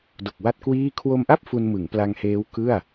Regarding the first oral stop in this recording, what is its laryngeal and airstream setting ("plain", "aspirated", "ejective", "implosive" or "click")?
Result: plain